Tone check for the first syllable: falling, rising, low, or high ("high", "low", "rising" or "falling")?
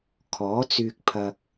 rising